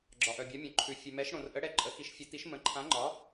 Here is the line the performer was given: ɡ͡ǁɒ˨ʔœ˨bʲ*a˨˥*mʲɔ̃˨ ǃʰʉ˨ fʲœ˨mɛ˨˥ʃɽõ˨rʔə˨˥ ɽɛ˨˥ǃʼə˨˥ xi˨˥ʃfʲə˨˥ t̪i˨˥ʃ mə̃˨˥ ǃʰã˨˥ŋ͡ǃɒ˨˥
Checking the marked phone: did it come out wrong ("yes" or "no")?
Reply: no